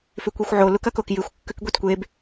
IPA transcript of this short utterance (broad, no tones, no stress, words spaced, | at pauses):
fʉkʷixʷʕo lukɐkokjɨxʷ kːʉkɡʷetkʷeb